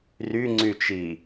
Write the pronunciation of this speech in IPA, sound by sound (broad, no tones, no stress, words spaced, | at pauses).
ryŋ͡ǀyt͡ʃi